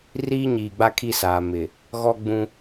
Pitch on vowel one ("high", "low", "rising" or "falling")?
high